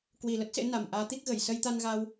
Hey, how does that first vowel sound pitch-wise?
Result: low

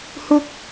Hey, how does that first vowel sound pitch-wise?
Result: high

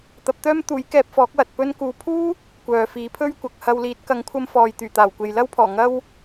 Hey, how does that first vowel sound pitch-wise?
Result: rising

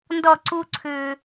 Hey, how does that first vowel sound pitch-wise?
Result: falling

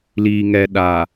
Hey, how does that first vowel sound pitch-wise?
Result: low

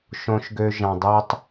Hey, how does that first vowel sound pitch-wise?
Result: high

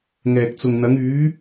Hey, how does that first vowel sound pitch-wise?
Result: low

